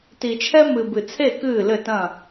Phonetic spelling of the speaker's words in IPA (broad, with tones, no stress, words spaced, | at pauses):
ti˨t͡ʃʰɛ˦ mɨ˨bɨ˨t͡sʰe˦˨ kɨː˦˨lɘ˦˨tɐ̃˦˨